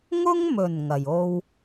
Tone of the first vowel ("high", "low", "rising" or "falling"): high